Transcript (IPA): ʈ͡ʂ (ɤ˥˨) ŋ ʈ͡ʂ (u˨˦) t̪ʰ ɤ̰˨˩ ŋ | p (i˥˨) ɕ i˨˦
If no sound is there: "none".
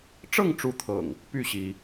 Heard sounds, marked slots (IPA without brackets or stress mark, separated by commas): ɤ˥˨, u˨˦, y˥˨